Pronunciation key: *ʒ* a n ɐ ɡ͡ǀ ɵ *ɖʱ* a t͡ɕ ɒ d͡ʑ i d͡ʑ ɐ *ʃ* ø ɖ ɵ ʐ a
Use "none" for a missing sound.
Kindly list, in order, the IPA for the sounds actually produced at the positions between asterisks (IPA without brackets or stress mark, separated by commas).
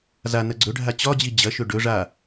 z, ɖʱ, ʃ